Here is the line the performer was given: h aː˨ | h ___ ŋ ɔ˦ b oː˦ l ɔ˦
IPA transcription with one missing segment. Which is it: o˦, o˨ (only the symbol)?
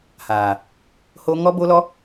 o˦